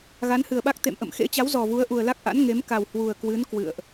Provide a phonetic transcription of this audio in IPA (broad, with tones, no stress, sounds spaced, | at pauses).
ɣ a˨˦ n h ɨ˨˩ ə̯ ɓ a˦˥ k̚ t̪ ḛ˧˨ m ʔ ə̰˧˨ m x ḛ˧˥ t͡ɕ a˨˦ w z ɔ˨˩ v u˨˦ ə̯ ʔ u˨˩ ə̯ l a˦˥ k̚ ʔ a̰˧˥ n ŋ e˨˦ m k a˨˩ w h w u˨˩ ə̯ k w ɨ˨˦ n k w ɨ̰˧˨ ə̯ ʔ